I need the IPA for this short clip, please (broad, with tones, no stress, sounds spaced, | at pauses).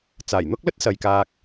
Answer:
t͡s aː˨˩ j n̪ ʊ˥ k̚ l ɵ˥ t̚ s ɐ˨ j k aː˧ k̚